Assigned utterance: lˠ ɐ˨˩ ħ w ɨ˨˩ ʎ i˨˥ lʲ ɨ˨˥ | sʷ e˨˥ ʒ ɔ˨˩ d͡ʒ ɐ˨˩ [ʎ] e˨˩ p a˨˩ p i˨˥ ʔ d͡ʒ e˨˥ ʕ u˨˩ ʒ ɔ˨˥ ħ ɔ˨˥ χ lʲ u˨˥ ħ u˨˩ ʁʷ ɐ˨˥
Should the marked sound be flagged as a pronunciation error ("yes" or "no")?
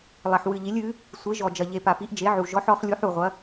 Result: no